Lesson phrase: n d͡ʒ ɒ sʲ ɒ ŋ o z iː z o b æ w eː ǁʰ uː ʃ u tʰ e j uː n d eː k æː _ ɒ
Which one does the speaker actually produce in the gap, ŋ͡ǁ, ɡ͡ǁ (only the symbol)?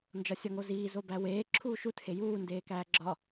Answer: ɡ͡ǁ